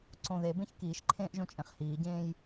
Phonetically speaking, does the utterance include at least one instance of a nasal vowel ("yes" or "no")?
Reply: yes